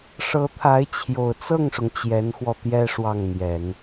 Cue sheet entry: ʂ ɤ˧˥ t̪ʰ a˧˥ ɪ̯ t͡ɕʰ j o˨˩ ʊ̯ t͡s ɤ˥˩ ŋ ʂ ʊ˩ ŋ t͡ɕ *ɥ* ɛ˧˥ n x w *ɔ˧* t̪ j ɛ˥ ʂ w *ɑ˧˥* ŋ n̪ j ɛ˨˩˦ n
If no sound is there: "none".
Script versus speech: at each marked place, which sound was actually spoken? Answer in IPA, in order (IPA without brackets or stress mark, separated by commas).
j, ɔ˧, ɑ˥˩